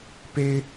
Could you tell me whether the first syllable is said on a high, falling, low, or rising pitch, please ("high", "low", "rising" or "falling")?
high